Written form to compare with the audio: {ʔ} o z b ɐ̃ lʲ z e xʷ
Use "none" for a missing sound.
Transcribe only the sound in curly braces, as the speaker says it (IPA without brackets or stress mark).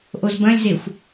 ʔ